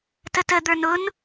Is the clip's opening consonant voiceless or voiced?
voiceless